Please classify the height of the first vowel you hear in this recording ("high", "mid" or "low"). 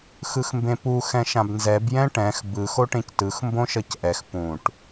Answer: high